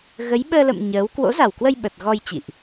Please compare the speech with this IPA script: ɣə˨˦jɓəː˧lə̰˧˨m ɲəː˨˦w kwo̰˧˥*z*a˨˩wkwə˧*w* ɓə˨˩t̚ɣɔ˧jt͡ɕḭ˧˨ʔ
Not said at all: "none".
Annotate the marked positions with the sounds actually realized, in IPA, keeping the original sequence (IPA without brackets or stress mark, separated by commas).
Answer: z, j